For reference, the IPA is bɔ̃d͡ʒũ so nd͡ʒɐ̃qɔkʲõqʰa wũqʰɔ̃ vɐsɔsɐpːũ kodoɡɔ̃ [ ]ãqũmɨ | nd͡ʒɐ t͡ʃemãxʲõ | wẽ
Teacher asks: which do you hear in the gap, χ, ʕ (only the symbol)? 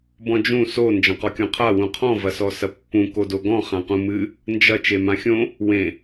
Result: χ